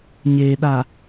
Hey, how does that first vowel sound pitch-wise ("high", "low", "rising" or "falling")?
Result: low